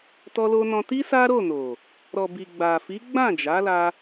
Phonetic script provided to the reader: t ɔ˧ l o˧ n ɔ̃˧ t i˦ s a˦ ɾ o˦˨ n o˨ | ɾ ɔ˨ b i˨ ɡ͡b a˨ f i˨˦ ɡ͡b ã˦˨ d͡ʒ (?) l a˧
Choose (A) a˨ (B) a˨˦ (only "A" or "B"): B